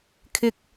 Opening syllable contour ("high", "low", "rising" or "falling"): low